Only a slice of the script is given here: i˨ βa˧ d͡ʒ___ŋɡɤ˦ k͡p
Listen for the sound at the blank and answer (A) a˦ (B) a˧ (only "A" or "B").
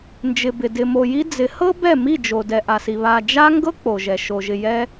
A